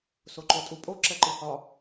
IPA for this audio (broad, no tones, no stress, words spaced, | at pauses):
soǃotʼupʼo ǁɛǃɨhɒ